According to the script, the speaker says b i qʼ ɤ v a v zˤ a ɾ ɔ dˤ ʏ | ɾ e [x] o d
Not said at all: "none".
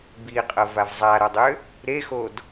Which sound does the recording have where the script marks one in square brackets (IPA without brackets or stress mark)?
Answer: x